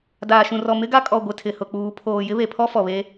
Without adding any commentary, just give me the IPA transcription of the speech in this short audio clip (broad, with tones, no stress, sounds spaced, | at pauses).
d aː˨ ʃ ũ˨ r ɔ˨ m ɪ˦ ɡ a˦ kʼ ɔ˨ ɡʷ ɪ˨ tʰ ɪ˨ h ʊ˨ k͡p uː˨˦ pʰ oː˨ j ɪ˦ β e˨ pʰ ɔ˦ f ɔ˨ β e˦